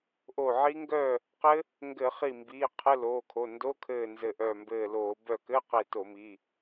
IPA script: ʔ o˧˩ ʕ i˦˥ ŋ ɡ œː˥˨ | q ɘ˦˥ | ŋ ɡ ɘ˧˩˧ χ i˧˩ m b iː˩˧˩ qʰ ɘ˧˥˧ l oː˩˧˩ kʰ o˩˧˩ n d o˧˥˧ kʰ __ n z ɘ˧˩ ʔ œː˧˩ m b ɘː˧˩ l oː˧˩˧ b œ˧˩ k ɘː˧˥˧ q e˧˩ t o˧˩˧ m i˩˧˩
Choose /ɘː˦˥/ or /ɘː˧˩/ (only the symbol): ɘː˧˩